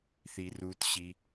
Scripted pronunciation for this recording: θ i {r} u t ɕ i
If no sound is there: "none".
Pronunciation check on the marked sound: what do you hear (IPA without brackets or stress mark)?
r